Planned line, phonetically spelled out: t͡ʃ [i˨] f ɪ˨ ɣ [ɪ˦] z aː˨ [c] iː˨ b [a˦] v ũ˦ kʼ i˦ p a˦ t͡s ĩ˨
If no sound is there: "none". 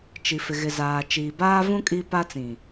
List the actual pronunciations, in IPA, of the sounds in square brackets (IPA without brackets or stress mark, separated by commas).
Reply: i˨, ɪ˨, t͡ʃ, aː˦